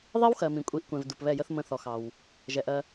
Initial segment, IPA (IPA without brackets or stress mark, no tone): ðˤ